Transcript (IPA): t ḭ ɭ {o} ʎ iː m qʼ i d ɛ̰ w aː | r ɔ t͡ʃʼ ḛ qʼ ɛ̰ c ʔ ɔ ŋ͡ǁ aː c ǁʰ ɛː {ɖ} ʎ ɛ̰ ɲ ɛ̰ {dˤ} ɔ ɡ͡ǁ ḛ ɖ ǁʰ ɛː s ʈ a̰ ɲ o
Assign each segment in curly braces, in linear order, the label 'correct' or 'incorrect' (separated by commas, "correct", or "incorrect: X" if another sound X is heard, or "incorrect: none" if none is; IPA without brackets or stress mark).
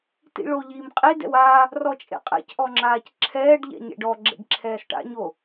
correct, correct, incorrect: ɖ